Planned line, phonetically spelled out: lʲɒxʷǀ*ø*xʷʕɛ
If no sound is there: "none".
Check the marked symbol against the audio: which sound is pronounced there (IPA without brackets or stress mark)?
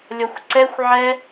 ɛ